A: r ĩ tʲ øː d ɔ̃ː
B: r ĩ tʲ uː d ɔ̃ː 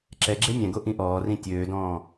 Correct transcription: A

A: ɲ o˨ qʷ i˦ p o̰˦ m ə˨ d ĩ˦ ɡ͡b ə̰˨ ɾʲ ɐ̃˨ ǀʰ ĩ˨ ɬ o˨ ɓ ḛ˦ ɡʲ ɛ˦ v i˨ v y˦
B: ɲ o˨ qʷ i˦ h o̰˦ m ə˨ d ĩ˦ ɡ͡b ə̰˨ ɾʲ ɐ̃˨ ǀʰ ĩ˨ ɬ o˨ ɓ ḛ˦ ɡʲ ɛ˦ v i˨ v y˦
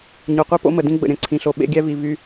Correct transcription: A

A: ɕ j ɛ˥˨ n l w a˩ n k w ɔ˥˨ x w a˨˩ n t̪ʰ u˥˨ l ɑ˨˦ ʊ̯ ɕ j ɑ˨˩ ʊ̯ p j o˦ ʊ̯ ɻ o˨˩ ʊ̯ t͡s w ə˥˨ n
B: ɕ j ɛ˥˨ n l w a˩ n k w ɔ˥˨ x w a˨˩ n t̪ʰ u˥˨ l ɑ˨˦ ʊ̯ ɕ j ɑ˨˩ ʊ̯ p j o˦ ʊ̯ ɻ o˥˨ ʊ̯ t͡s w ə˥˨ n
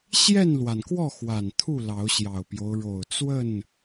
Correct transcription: A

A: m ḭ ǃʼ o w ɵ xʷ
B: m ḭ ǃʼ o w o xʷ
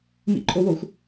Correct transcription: B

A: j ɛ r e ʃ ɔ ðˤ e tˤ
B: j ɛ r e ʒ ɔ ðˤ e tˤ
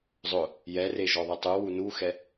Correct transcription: B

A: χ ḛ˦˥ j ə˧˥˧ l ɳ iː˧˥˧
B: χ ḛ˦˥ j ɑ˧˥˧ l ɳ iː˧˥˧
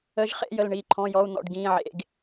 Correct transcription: A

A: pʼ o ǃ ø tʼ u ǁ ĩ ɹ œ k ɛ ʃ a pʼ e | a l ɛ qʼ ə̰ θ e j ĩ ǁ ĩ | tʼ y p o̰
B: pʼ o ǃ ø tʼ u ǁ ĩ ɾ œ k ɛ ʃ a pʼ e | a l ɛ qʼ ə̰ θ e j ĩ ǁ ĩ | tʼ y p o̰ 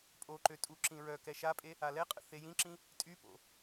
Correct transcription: A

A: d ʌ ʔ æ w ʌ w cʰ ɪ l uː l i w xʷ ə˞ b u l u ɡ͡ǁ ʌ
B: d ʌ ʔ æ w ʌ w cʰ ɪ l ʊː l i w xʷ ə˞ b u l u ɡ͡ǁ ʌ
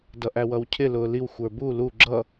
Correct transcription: B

